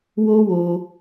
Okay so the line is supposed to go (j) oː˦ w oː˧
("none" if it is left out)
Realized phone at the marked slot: w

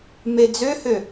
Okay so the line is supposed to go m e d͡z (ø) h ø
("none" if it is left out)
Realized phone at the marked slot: ø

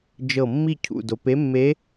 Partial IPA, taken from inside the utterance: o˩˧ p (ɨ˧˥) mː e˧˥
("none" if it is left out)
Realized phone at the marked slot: e˧˥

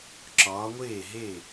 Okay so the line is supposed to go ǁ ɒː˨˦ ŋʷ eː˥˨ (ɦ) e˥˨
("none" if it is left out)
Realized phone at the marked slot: ɦ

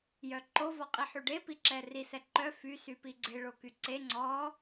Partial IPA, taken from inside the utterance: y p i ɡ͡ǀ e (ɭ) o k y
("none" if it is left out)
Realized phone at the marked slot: ɭ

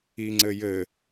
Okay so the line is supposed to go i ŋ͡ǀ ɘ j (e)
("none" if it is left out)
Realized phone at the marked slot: ɘ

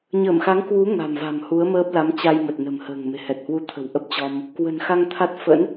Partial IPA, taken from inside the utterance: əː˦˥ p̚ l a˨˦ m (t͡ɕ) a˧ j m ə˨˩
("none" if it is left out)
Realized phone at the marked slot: t͡ɕ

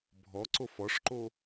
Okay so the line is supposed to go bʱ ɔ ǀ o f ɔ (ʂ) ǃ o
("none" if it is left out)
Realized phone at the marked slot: ʂ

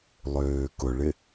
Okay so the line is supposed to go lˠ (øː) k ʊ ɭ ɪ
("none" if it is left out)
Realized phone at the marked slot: øː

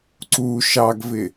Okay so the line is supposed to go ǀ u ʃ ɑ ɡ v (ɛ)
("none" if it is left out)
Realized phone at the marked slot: ɪ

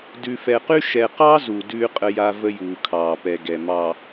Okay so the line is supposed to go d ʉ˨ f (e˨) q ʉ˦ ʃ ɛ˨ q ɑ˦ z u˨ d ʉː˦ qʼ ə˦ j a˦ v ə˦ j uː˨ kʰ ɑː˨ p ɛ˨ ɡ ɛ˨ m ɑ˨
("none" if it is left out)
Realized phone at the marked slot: ɛ˨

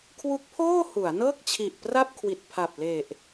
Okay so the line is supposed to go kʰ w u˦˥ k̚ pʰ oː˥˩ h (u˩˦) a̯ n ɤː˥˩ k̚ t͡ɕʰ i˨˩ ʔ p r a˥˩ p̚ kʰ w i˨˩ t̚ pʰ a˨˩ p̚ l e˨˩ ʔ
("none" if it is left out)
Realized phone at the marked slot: u˩˦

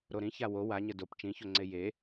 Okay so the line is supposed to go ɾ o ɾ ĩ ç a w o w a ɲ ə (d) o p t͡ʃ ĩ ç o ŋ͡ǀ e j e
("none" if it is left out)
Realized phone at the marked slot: d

